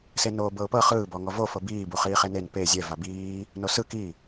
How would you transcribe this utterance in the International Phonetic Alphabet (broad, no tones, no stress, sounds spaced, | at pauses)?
s e n oː b ɤ ʊ̯ p ɤ χ ɯː b ɔ ŋ ɔ v o f ɤ b iː b u χ iː χ e n e n p e zʲ ɛ v a b iː | n o s ɯ k i